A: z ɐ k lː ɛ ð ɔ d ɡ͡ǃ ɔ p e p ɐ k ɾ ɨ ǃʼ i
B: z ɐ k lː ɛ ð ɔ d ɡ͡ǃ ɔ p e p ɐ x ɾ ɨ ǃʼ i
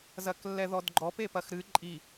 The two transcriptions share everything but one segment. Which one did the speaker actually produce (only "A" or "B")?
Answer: B